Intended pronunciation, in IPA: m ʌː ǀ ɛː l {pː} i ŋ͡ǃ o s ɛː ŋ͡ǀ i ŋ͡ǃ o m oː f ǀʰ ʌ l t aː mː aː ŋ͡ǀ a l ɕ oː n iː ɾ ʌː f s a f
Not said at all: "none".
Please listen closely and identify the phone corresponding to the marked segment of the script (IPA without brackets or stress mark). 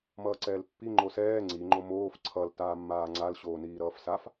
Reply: pː